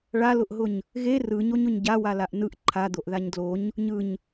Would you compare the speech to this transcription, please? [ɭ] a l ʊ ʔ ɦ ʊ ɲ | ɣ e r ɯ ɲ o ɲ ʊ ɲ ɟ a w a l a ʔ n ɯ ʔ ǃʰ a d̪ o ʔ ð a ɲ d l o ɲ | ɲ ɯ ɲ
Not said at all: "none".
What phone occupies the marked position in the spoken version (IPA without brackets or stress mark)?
ɭ